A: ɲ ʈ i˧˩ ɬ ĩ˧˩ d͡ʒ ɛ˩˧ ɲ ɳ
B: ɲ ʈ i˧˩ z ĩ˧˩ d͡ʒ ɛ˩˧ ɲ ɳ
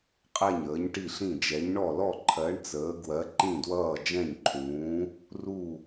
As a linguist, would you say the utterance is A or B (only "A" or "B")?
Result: A